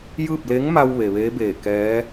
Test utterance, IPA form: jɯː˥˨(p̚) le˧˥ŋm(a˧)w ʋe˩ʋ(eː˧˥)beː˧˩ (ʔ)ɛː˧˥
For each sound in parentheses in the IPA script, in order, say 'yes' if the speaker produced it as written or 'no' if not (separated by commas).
yes, yes, yes, no